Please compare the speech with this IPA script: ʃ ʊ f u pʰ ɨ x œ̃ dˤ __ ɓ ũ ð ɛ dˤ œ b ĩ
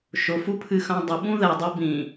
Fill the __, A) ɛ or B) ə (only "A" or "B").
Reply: B